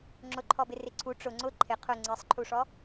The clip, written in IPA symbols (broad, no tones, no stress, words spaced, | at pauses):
ŋ͡ǁʊǃʰɔbɪ rɪǀʰu ʈ͡ʂʊ ŋ͡ǀʊ ǃʰɪ qʰʊ ŋ͡ǀesˤǃʰuʂɔ